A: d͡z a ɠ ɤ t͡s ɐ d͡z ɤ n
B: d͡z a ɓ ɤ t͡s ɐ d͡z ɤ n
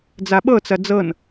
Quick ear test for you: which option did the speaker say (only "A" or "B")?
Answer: B